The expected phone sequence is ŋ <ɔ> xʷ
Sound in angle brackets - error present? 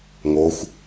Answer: yes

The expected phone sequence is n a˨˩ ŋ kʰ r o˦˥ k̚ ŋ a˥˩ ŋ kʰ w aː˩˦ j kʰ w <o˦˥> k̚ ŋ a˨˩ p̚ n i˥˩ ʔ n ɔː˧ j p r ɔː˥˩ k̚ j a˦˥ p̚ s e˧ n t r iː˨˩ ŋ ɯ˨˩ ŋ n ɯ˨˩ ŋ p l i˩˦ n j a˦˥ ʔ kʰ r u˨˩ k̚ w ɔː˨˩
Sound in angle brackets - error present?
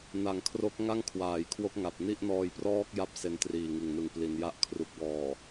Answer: no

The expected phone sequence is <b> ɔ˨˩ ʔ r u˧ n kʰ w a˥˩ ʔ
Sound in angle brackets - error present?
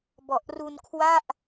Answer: no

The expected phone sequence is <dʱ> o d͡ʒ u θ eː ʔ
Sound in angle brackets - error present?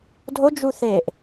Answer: no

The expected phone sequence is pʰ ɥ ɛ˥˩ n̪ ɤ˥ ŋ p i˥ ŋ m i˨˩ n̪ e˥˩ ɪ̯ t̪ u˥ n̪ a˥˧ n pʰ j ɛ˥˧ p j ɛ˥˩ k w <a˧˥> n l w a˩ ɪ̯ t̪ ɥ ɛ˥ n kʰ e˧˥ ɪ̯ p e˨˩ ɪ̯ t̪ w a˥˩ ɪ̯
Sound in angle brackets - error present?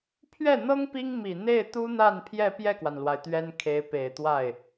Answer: yes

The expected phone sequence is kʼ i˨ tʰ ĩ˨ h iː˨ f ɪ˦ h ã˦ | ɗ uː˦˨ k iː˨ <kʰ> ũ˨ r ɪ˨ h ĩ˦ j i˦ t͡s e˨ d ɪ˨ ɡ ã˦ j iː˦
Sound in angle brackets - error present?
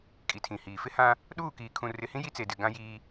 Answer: no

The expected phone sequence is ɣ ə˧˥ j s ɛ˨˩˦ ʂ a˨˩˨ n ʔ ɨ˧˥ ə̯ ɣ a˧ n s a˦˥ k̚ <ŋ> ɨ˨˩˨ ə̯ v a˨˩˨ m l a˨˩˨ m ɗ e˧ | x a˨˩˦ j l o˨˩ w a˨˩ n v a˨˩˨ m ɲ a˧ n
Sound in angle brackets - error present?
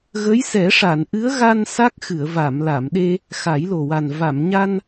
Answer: yes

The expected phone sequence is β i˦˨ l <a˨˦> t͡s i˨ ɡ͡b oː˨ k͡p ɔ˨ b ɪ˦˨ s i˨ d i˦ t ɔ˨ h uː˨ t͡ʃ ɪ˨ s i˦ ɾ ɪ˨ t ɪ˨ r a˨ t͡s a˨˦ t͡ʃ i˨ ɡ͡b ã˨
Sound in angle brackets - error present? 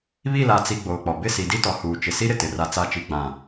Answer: yes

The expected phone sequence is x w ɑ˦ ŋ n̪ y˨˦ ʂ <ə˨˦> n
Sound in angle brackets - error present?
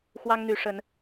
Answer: no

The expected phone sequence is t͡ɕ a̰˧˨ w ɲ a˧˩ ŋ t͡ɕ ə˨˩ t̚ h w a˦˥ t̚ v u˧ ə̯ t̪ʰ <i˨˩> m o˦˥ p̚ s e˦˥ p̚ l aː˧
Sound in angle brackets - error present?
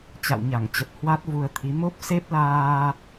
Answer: yes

